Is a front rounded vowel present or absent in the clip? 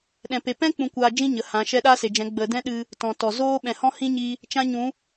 absent